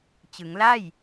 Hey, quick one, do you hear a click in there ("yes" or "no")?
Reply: no